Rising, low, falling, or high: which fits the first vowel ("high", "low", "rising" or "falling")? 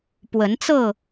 rising